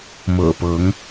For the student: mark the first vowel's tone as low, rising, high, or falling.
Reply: low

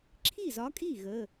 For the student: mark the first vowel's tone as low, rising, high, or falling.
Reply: falling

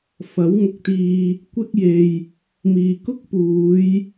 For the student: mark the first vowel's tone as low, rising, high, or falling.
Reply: rising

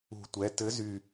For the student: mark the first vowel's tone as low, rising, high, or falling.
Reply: low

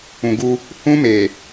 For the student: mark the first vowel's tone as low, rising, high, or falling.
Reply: low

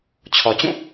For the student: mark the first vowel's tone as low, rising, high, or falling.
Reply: low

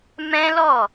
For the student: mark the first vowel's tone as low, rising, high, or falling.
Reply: high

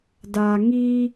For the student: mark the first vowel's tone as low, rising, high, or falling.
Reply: low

